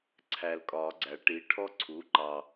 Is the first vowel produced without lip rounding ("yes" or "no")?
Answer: yes